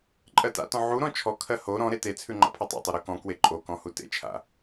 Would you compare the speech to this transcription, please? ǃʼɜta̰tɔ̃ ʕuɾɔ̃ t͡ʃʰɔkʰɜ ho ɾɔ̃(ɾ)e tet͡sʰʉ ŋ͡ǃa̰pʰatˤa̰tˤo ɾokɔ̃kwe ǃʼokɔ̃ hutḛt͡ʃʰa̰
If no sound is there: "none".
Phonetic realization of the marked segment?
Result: ɾ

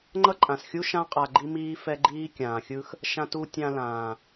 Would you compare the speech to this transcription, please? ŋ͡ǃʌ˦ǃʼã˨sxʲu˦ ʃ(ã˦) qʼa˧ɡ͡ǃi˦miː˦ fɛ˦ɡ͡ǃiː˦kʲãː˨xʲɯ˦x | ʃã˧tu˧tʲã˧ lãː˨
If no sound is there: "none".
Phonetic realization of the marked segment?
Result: ã˦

